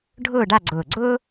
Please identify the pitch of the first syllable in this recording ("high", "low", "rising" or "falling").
falling